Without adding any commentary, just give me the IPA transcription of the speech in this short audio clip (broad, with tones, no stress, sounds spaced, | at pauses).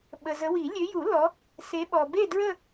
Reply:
ɓ ə˨ z ə˨˦ w i˨˩˦ lʲ ø˨˦ j u˨˩˦ l ɔ˨˦ | s e˨˦ ɓ ɔ˨ b e˥˧ d ɹ ə˥˧